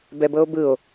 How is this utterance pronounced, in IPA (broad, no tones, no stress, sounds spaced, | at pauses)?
b ɛ b ɤ o̯ b ɯ o̯